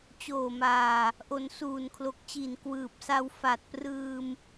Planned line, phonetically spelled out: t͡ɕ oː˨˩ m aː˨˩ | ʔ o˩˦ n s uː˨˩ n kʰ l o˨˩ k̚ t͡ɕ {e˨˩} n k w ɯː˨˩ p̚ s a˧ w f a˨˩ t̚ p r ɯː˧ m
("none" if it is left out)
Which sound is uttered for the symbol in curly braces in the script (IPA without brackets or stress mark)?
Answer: i˨˩